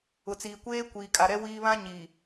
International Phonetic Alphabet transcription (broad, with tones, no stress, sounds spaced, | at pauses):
ʊ˨ t͡s iː˨ kʷ eː˦ kʷ iː˨ kʼ a˨ ɾ ɛ˦ w iː˦ β ã˦ ɲ iː˨